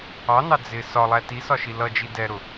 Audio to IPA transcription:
ɑ n ɑ d͡z ɪ s ɒ lˠ æ t i s ɒ ʃ i l ʌ d͡ʒ i d ɛ ɾ ʊ

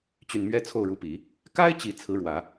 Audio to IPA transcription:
t͡ɕ y˨˩ n m ɥ ɛ˧˥ t͡sʰ o˥˩ ʊ̯ ɻ u˧˥ p i˨˩˦ | k a˥ ɪ̯ t͡ɕ i˨˩ t͡sʰ ɹ̩˧˥ ɻ w ä˨˩˦

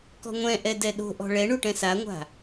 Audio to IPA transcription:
k ɔ̤ ŋʷ ɛ̃ ʔ ɛ d ɛ ɗ o̤ ʔ ɔ̤ ɭ ɛ ɳ u ʈ ɛ̃ s a ŋʷ a̤

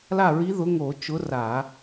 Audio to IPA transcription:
l a˥˩ ɹ i˧˥ ð ʊ˧˥ ŋ o˧˩˧ t͡ʃ ʊ˧˥ r a˧˩˧

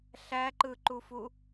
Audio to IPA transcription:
ɬ æ ǃ ɯ ǃ u f u

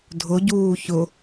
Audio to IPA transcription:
dʱ ʊ ɟ uː ç ʊ

